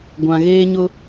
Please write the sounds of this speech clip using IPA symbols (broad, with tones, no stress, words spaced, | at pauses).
ɡʷã˨ ɣeː˦ɲʊ˦